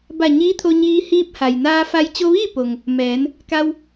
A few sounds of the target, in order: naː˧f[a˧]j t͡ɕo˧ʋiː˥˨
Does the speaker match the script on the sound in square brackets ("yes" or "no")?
yes